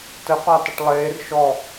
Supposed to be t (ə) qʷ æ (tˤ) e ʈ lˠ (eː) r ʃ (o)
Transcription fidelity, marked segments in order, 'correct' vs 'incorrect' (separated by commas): correct, correct, correct, incorrect